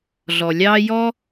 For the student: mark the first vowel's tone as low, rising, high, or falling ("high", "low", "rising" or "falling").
low